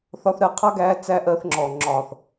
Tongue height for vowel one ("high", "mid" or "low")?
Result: low